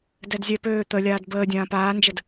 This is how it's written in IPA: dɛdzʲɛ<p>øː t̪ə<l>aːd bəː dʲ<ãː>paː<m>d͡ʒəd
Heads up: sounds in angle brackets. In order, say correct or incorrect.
correct, incorrect: lʲ, correct, incorrect: n

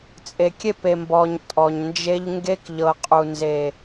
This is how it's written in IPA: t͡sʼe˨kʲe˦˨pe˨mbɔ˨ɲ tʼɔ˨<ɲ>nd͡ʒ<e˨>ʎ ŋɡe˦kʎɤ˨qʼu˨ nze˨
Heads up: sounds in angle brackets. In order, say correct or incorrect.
correct, incorrect: e˦

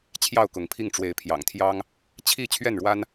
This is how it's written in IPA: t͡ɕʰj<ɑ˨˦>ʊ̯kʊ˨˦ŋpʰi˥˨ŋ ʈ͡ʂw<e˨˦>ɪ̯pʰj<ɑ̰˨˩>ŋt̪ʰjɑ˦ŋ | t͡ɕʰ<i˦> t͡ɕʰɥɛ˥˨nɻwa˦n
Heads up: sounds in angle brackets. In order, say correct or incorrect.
incorrect: ɑ˥˨, correct, correct, incorrect: i˥˨

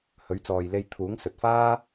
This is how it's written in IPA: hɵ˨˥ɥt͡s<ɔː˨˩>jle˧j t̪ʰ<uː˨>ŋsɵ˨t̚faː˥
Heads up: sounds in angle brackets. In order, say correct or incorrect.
incorrect: ɔː˨, incorrect: uː˨˥

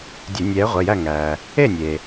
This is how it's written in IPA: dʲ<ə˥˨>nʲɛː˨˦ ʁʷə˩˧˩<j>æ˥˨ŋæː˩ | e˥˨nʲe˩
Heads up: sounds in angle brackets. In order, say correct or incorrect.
incorrect: ə˧˩˧, correct

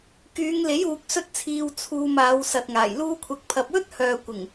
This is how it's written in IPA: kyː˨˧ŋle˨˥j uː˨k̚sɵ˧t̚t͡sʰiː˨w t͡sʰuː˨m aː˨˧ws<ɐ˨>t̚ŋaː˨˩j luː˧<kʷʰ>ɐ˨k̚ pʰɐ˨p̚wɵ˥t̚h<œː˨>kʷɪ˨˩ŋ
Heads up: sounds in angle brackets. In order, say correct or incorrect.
correct, correct, correct

